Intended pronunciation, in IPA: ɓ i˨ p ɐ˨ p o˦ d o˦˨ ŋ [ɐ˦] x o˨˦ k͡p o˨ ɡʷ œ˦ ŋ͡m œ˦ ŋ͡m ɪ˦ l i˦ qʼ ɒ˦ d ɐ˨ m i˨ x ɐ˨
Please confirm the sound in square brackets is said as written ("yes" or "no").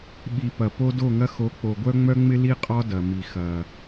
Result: yes